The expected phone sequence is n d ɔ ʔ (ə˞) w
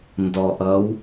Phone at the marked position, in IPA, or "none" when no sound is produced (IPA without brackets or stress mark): ʌ